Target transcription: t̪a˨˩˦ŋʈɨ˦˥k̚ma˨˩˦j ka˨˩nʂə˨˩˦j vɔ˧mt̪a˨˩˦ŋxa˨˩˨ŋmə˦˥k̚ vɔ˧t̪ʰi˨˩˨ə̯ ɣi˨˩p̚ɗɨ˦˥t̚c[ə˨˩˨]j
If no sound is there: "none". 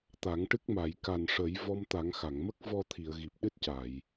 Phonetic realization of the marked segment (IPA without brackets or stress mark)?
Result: a˨˩˨